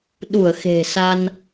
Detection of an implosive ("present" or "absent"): present